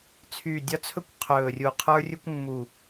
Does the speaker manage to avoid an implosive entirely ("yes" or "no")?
yes